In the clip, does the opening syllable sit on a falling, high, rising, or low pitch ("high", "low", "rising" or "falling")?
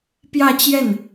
falling